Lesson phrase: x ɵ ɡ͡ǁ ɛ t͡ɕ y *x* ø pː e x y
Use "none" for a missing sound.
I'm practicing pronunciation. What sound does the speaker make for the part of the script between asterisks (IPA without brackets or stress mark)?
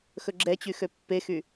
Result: x